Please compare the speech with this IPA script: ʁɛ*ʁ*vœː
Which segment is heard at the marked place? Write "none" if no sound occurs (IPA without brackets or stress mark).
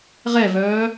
none